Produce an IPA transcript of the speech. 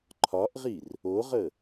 ǃʰ ɒ ʔ ʁ i r | o ʁ ə

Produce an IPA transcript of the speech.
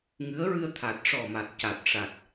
ŋ ɨ˧˥ ə̯ ɹ ɨ˧ ə̯ t̪ʰ a˨˩ t̚ ʂ ɔ˨˩ m a˨˩ t̚ c a˨˩ t̚ ʂ a˨˩ t̚

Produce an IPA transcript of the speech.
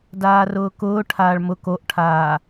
d aː r ʊː k ʊː ʈʰ aː ɭ m ʊ k o ʔ ʈʰ aː

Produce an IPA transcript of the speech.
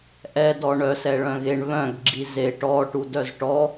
ʔ ɛ d ɔ ɳ œ s ɛ ɭ œ̃ ɣ e ɳ β œ̃ ɡ ɡ͡ǁ i z e ʈ ɔ ʈ u d œ z ʈ ɔ

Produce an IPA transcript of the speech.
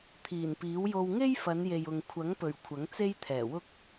t̪ʰ iː˨˩ n p iː˨˥ w j o˧ w ŋ e˥ j f ɐ˨˧ n j e˨ j ʊ˨ ŋ kʷʰ ɐ˨˥ ŋ p ɵ˨˩ ɥ kʷʰ ɐ˨˥ ŋ t͡s e˥ j t̪ʰ ɛː˨˩ w ʊ˥ k̚

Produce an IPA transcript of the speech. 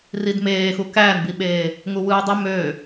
r i d m eː x u k æː n b i ɓ eː | ŋ u w ɯː dˤ y m ø

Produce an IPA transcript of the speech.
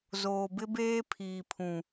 z oː˨ b ɪ˦ b eː˦ pʰ iː˨ pʰ ũ˨

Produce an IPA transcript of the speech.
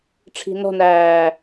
ʈ͡ʂʰ i̤ n ɔ̤ n æː

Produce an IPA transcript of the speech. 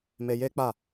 m e˧ j e˦ k͡p a˦˨

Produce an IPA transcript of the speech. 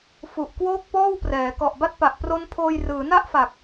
f u˨˩ ʔ k w oː˥˩ k̚ p ɔː˥˩ w p r ɛː˩˦ k ɔ˨˩ ʔ b a˥˩ t̚ p a˨˩ ʔ p r o˦˥ n pʰ oː˧ j r ɯː˩˦ n a˥˩ ʔ f a˨˩ k̚

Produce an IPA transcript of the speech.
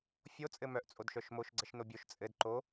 fʲ o t͡sʼ ɘ m œ ʔ t͡sʼ o d ʃ œ ʃ m o ʃ ɡ͡ǀ ə ʃ n o bʲ o ʃ t͡sʼ ɘ d ǃ o

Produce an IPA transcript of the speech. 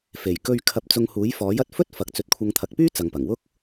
f e˨˩ j k ɵ˧ ɥ kʰ ɐ˧ p̚ t͡s ʊ˧ ŋ h uː˨˥ j f ɔː˨˥ j ɐ˧ t̚ f ɵ˥ t̚ f ɐ˨ k̚ t͡s ɵ˨˥ t̚ kʷʰ ɐ˧ ŋ t̪ʰ ɐ˨ k̚ p yː˥ t͡s ɐ˨ ŋ p ɐ˨˩ ŋ w ʊ˥ k̚

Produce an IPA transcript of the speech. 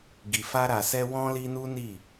ɡ i˨ f a˧ ɾ a˨ s ɛ˧ w ɔ̃˦ l i˦ n u˦ n i˦˨

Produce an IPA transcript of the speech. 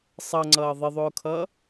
sˤ ʌ ŋ͡ǀ ʌː ðˤ ɪ ðˤ ʊː kʰ ʌː

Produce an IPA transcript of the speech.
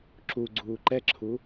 ǁ u ɡ͡ǀ uː ǃ ɛ ǁʰ u

